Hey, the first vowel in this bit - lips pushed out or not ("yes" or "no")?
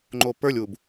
yes